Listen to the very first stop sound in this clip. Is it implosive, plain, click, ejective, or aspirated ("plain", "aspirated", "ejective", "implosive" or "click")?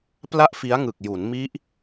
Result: plain